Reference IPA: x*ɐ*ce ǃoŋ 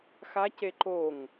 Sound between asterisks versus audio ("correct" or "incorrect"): incorrect